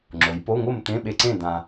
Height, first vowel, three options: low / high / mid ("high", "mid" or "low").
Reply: mid